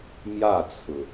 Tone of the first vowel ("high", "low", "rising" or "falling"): falling